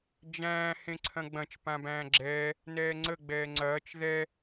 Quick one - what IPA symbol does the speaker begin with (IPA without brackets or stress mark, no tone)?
d͡ʒ